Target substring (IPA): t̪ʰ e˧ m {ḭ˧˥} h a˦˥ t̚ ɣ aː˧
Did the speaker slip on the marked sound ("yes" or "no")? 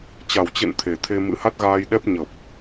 yes